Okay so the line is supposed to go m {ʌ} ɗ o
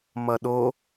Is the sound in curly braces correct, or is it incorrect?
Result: correct